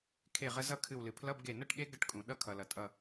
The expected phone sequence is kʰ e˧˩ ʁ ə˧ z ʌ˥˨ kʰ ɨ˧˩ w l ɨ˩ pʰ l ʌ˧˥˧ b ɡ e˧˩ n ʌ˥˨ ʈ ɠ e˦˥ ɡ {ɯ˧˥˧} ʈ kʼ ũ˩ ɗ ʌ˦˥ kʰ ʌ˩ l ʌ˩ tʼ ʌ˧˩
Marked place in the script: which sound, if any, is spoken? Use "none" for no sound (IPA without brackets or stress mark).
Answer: ə˧˥˧